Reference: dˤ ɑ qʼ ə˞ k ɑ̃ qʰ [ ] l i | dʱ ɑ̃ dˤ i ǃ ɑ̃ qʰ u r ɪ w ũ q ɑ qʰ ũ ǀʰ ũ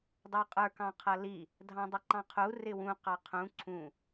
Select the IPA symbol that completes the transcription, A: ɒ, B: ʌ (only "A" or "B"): B